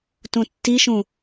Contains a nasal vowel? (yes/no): yes